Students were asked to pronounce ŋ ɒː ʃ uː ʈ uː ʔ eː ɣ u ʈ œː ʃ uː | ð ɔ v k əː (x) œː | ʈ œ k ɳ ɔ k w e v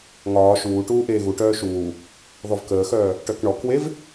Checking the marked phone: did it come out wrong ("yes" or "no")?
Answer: no